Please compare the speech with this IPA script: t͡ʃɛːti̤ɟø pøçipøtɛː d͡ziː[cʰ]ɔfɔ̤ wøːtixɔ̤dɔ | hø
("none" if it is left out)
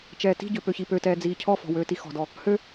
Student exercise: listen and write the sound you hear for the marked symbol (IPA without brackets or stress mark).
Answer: cʰ